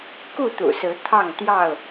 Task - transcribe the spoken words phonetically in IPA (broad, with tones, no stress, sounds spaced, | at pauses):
k u˥˨ t̪ ṵ˨˩ s ɹ̩˨˦ t̪ʰ ɑ˥˨ ŋ t̪ j ɑ˥˨ ʊ̯